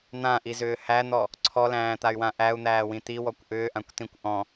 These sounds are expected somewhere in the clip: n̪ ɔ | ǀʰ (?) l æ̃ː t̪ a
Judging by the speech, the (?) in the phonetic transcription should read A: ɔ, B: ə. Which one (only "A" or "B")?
A